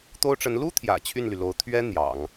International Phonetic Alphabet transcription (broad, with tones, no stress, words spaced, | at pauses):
t̪o˥ʊ̯ʈ͡ʂə˧˥n lu˥t̪ʰjä̰˨˩ t͡ɕʰy˥˩nly˩lo˧˥ʊ̯ t̪ʰɥɛ˥ n̪jɑ̰˨˩˦ŋ